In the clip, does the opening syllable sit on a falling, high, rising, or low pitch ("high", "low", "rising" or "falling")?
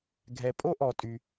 low